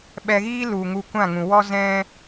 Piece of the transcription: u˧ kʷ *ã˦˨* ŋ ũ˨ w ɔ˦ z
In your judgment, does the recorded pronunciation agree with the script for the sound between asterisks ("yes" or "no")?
yes